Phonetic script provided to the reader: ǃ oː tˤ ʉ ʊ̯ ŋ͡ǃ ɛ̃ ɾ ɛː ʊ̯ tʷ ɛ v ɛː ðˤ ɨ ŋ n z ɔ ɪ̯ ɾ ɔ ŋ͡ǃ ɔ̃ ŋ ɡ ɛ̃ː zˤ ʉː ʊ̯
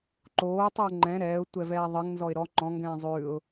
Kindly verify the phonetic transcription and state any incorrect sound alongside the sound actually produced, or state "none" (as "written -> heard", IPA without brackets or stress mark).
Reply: none